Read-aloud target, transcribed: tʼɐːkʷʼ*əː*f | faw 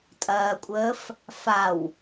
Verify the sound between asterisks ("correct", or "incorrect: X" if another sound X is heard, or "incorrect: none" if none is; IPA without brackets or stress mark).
correct